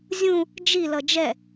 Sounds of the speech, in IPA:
zʲũ | d͡ʒi lʌd͡ʒɛ

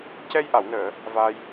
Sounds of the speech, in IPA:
cɛ˧jʔa˨˩˨wnəː˨˩˨ | va˧j

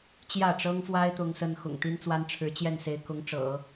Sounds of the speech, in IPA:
t͡ɕjä˥˩ʈ͡ʂɤ˥ŋfwa˥ɪ̯ t̪ʊ˥ŋsə˥n xʊ̰˨˩ŋt̪i˥nt͡swa˥nʈ͡ʂʰɻ̩˧˥ t͡ɕjɛ˥˩nse˧˥ɪ̯kʊ˧˥ŋʈ͡ʂɤ̰˨˩˦

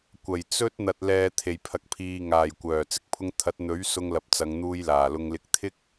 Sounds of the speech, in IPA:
kʷɐ˨˩jt͡sɵ˥t̚ n̪ɐ˨t̚lɛː˨ t̪ʰe˨˩jpʰɐ˨k̚pʰiː˨ŋaː˨˩j kʷœː˨˩t͡sɪ˧k̚pʰʊ˧ŋt̪ʰɐ˨˥t̚ n̪ɵ˨˥ɥ sʊ˧ŋlɐ˨p̚t͡sɐ˨˧ŋn̪uː˧j laː˨˩lʊ˧ŋ lɪ˧k̚ t̪ʰɪ˥k̚

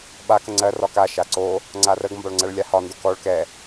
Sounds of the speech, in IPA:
ɓa kəŋ͡ǀɜ rɒka ʃaǀo | ŋ͡ǀarəɡ mbɒɭŋ͡ǀɜɭlʲahɒ ndokɔɭ kɛ

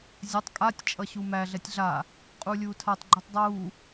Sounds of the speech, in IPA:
zʲɐtˤ kʼatʲ t͡ʃʼʌɕumæ ɮɛtʲɮa | qʼuːlʲuːtʰatˤ ɡ͡ǃutˤdˤuː

